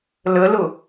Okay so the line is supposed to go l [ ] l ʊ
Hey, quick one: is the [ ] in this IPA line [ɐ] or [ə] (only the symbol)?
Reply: ə